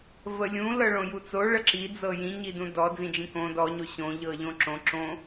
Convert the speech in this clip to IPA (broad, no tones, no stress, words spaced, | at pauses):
vəlʲũ lɤɭõjut͡so ɭəǁi d͡zɤjĩ ɲidũdɔ d͡zĩd͡ʒĩkõ dɔ ɲoɕõ ʎɤʎõǁõ ǁõ